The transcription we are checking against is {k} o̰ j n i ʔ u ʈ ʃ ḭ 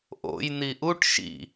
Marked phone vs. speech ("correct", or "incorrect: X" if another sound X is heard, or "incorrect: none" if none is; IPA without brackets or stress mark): incorrect: ʔ